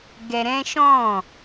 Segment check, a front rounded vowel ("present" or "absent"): absent